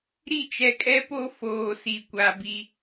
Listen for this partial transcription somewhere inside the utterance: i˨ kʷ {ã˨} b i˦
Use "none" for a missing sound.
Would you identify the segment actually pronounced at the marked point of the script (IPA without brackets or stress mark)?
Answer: a˨